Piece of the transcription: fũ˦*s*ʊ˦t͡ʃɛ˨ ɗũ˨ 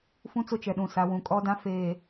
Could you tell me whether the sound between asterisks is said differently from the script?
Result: yes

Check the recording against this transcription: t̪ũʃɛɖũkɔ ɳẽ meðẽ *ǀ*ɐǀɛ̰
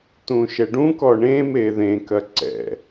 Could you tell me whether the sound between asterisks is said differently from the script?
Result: yes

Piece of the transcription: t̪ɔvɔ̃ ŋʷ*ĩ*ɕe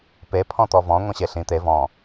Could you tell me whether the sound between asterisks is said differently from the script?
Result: yes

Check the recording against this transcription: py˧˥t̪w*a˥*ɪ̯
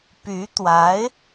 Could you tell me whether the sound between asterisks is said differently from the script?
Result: yes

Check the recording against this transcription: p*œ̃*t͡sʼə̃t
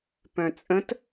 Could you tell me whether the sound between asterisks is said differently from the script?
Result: no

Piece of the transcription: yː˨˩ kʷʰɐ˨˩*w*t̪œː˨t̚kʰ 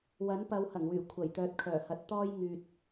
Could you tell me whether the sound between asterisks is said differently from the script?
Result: yes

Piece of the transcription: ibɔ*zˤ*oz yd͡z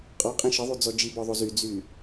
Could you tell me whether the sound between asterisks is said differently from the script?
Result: yes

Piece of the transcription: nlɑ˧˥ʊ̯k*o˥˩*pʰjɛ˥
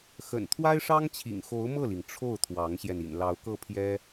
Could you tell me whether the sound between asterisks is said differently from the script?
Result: yes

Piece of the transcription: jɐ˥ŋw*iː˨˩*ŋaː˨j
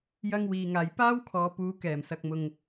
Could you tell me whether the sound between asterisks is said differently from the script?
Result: yes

